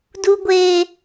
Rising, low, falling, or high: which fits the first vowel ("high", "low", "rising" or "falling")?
high